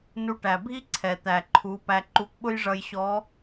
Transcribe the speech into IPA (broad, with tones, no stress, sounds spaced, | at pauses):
n u˧ ʈ æ˩ bʱ i˥ ǀʰ ɛ˩ t̪ æ˩ ǃʰ u˩˧ p æ˧ ǃ u˧˥ k ɓ ʊ˥ j ʐ ʌ˧ j ɕ ɔ˧˥